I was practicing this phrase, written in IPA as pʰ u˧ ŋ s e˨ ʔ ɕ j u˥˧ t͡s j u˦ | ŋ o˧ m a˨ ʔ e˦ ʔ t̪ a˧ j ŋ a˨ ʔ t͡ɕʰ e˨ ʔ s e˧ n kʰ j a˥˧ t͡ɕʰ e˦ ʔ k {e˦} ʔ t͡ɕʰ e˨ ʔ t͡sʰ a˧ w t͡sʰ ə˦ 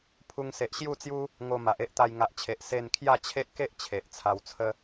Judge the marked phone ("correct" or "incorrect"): correct